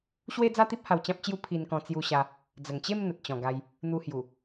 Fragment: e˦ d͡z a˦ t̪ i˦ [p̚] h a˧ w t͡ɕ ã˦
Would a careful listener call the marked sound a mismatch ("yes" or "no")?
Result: no